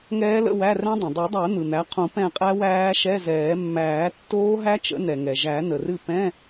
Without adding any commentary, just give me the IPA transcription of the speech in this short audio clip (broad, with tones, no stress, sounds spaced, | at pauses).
ŋ ɛː˦˥ l ə̰˧˥˧ w æ˧˥˧ r ɛ̃˦˥ dˤ ə̃˩ dˤ ɯ˨˩˦ dˤ æ˨˩˦ n̪ ɯ˩ n̪ æ˩˥ qʰ ũ˨˩˦ p ɛ̃˦˨ qʼ æ˦˥ w æː˦˥ ʃ ɛ˧˥˧ z ɛː˨˩˦ mː æː˨˩˦ tː oː˦˥ ɦ æ˦˥ t͡ʃ ə̰˩˥ n ɛ˩ ŋ ɛ˩ ʒ æ˨˩˦ n ə˩ r ɨ˦˨ p ɛ̃˧˥˧